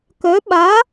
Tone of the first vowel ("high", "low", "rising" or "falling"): rising